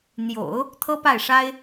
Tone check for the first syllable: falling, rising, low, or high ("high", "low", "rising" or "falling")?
low